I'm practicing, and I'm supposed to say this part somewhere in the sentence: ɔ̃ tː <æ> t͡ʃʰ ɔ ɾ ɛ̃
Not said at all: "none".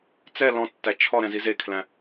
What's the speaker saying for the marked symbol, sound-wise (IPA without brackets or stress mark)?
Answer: æ